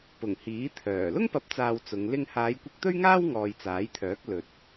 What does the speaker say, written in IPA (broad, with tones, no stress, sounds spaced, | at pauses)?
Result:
p ʊ˨˩ ŋ h iː˨˥ t̪ʰ œː˨˩ l ʊ˥ ŋ p ɐ˨˥ p̚ t͡s aː˨ w t͡s ʊ˨˧ ŋ l ɪ˥ ŋ h aː˨˧ j kʷ ɪ˧ k̚ t̪ ɵ˥ ɥ ŋ aː˥ w ŋ ɔː˨ j t͡s aː˨˥ j t̪ʰ œː˨˥ k̚ l ɵ˨ t̚